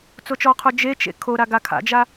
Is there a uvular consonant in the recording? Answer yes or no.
yes